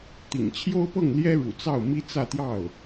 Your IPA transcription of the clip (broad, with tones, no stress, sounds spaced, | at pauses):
t̪ ḭ˨˩ ŋ t͡ɕʰ j o˥ ʊ̯ p ɤ˥˩ ŋ l j ɛ˥ ɻ ṵ˨˩ t͡s ɑ˥˩ ʊ̯ m i˥ t͡s ä˥˧ t̪ j ɑ˥˩ ʊ̯